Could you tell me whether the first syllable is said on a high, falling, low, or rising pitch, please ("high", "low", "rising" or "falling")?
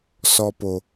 high